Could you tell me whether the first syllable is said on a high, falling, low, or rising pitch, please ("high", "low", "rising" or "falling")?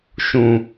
low